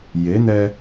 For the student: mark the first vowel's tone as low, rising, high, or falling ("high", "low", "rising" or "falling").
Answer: rising